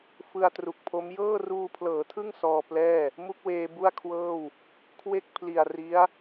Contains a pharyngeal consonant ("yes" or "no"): no